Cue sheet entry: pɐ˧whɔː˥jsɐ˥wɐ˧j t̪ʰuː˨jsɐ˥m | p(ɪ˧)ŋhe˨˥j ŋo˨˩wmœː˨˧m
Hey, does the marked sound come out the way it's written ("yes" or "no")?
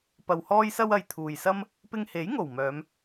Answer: yes